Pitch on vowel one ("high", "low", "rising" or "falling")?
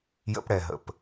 high